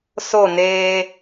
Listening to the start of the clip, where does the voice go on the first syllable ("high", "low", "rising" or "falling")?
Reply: falling